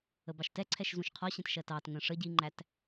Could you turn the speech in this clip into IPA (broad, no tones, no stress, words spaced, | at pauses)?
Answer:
əbɑʃtɛǀʰɛʃ zũʃqʰɒɕɛ̃t ʃɜtɑːtŋə̃ː ʂə ɟiŋ͡ǃæt